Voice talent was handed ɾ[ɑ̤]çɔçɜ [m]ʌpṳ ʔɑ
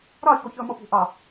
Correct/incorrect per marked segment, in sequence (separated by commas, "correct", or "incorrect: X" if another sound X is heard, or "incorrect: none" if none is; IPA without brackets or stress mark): incorrect: ɑ, correct